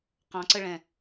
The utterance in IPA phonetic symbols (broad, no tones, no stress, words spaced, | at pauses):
qɑ̃ǀəɭɛ̃